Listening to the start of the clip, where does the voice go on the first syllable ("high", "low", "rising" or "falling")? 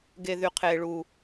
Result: low